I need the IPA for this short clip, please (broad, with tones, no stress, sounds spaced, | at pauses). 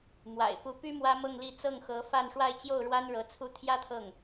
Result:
m w a̰˨˩ ɪ̯ f u˧˥ p y˥ m w ä˥ m ɤ˥˧ ŋ l i˥˧ t͡s ɤ˥˩ ŋ x ɤ˧˥ f a˥˧ n ʂ w a˥˧ ɪ̯ t͡ɕ j o˥˩ ʊ̯ ɻ w a˥ n ɻ ɤ˧˥ t͡sʰ u˥˩ t̪ʰ j ä˥ t̪ʰ ɤ˥˩ ŋ